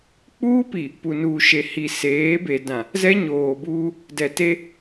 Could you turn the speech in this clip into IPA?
k͡p uː˦ p i˨ | p u˨ n uː˨ ʃ e˨ h i˨ s eː˨˦ b e˨ d ã˨ | z ɛ˦ ɲ oː˨ b uː˦ | d ɛ˨ t e˦

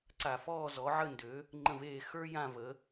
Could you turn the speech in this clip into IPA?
ǀ a˧˩˧ f ɔː˥˨ z ɔ˩˥ ʕ ə˥˨ n d ø˩˥ | ŋ͡ǃ ə̃˧˩ v eː˧˩ x ə˞˦ j ã˧˩ v ə˩˧

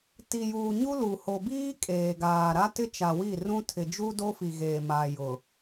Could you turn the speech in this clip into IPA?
t i˨ j uː˨ ɲ u˦ l u˨ h o˨ b iː˦ kʼ eː˨ ɡ aː˨ ɾ a˦ t ɪ˦ t͡ʃ a˨ w i˦˨ r ũ˦ tʰ ɪ˨ d͡ʒ u˦ d o˦ f i˨ ɣ eː˨ m aː˨ j ʊ˨

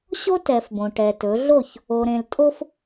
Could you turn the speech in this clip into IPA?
ɕ o˦ t ɛ˨ f b õ˨ ʈ ɛ˨ t ɵ˨˦ ɮ o˦˨ ç | o˨ ɾ ẽ˨ l tʼ o˦ f

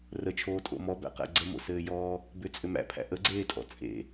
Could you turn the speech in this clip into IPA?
r ə t͡ʃʰ oː tʼ o̰ m ɔ b æ̰ q æ̰ ɡ͡ǀ ə m o̰ s ɘː j ɔː | b ʏ t͡sʼ ʏ m æ̰ pʰ æ̰ ʔ ə ɡ͡ǀ eː tʼ ɔ̰ t͡sʼ ḛ

